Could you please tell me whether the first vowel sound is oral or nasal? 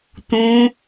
nasal